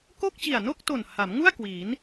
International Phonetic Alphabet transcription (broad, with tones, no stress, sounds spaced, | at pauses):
k o˥˩ k̚ t͡ɕ i˨˩ a̯ n o˥˩ k̚ t o˨˩ n h a˩˦ m ŋ u˥˩ a̯ k w iː˩˦ n